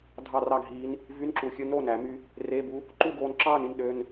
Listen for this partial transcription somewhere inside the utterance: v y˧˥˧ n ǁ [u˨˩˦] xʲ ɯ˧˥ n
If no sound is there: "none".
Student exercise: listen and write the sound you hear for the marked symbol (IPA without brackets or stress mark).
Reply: u˨˩˦